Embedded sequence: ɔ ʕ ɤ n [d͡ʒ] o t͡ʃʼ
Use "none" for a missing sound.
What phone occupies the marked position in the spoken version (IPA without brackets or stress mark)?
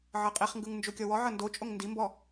d